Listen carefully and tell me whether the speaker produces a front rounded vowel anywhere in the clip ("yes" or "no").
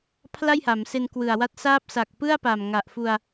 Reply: no